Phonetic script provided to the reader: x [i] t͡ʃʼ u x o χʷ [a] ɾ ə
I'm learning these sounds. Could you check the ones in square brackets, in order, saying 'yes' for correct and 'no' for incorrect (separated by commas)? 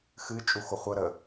no, no